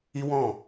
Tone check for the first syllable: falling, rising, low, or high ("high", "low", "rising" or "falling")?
high